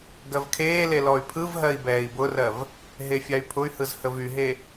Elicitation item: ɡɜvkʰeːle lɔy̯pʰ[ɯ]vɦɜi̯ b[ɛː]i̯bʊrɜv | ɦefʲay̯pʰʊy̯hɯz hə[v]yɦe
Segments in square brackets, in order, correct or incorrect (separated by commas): correct, correct, correct